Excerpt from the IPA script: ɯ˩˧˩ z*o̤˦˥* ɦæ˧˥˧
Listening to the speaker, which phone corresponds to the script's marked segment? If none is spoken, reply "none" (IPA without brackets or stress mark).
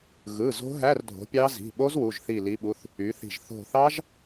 o̤˦˥